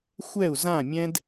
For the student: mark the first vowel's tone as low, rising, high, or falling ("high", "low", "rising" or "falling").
falling